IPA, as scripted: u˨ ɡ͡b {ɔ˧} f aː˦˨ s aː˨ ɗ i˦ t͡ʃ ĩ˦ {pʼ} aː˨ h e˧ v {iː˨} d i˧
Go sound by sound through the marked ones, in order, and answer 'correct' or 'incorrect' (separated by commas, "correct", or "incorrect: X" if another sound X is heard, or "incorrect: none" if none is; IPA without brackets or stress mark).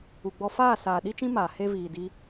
correct, incorrect: m, correct